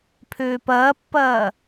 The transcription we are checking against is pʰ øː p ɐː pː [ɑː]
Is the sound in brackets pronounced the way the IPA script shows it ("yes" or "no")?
no